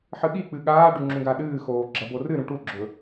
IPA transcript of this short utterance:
ħ ɨ ɠ i k͡p ɨ ɠ aː ɖ ʉ ŋ͡ǁ ũ ɡ a ɗ ɨː x oː ɡ͡ǁ ɐ b o r ɨ ɾ ũ ʈ u ɡ͡ǁ ɵ

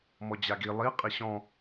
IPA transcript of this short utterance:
m ɔ d͡ʑ a ɡ i lˠ i qʼ i ɕ ɔ̃

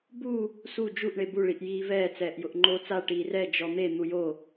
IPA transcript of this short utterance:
b u | s u d͡ʒ u ʔ ɳ e b u ɭ i ʔ j iː v ɛː t͡s ɛː ʔ j ʊ ʔ ŋ͡ǃ oː t͡s a ʈ iː r ɛ d͡ʒ ɔ n̪ e n̪ u j o

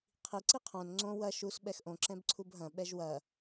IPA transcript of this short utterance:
qʰ i ǀ i qʰ õ n ŋ͡ǀ õ w ɐ ʃ u s ɓ ɛ x ʔ õ ǁ ɛ̃ b ǀʰ u b ɦ ɐ̃ ɓ ɛ ʒ w ɐ

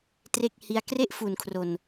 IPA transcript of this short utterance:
t r e˥˩ k̚ h i˧ a̯ k r e˥˩ ʔ f u˨˩ n kʰ r o˨˩ n

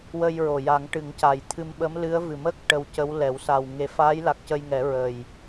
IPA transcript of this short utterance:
w ə˧ j ɹ o˨˩ j a˨˩˦ ŋ ʈ ɨ˨˩˦ ŋ c a˨˩ j t̪ʰ ɨ˧ m ɓ ə˧˥ m l ɨ˧˥ ə̯ v ɨ˨˩ m ə˦˥ k̚ ʈ ə˧ w c ə˧˥ w l ɛ˨˩˦ w s a˨˩ w ŋ e˨˩˦ f aː˧˥ j l a˨˩ k̚ c ə˧ j ŋ ɛ˨˩˦ ɹ ə˨˩ j

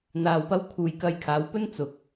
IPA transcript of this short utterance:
n̪ aː˨ w p ɐ˧ w kʰ uː˨ j k ɐ˧ j kʰ aː˨˧ w p ɵ˥ n t͡s ʊ˨ k̚

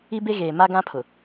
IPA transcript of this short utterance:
i˦ b e˦ ɣ eː˨ m a˦ ɡ ã˦ pʰ ʊ˨

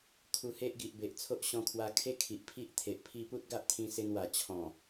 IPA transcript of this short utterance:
kʰ u˧ h e˦ ʔ ɡ i˨ ʔ b e˨ ʔ t͡sʰ o˦ ʔ ɕ ɔ̃˧ kʰ w a˧ kʰ e˦ kʰ i˨ ʔ pʰ i˦ ʔ t̪ʰ e˨ ʔ pʰ i˦ p u˦ t̚ ɡ a˦ ʔ t̪ʰ ĩ˧ s e˧ n w a˨˩ t͡ɕʰ ɔ̃˨˩

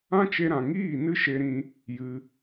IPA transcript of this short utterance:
ã˦ t͡ʃ e˧ ɾ ã˨ ŋ iː˦˨ n ɨ˦ ʃ e˧ ɾ ĩ˧ | j ɨ˧

